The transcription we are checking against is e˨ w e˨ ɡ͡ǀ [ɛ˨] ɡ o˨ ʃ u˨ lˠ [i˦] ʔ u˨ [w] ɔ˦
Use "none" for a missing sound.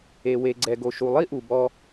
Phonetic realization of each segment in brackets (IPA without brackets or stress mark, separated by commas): ɛ˨, i˦, b